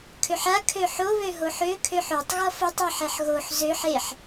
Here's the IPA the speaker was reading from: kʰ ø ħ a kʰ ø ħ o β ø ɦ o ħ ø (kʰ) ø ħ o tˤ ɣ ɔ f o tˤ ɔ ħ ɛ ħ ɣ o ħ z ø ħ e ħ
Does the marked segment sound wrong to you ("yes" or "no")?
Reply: no